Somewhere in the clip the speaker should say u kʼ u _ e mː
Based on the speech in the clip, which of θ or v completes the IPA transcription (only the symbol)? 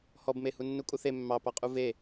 θ